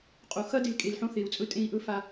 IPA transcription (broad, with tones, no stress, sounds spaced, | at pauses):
qʼ o˨ x ɐ˦ d e˨ l kʼ e˨ l ħ õ˦ θ e˨ u̯ t͡sʼ ɵ˦ tʼ ẽ˦ i̯ ʔ ɵ˦ f a˦